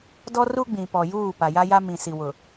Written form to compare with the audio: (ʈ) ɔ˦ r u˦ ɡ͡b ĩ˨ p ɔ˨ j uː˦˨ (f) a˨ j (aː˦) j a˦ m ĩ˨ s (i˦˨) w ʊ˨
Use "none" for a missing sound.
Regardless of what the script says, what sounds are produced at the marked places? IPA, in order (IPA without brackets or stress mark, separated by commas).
d, p, a˦, i˨